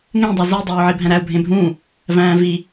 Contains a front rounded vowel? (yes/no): no